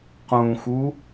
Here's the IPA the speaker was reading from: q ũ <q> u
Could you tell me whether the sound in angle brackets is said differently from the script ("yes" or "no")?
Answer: yes